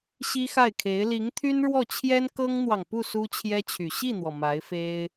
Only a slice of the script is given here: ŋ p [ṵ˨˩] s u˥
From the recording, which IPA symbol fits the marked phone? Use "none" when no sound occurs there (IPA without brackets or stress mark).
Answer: u˥˩